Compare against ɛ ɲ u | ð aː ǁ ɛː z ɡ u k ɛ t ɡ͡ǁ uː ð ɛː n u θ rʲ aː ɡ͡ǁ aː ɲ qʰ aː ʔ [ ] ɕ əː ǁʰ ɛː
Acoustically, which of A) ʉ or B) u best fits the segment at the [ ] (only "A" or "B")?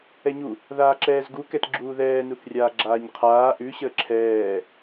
A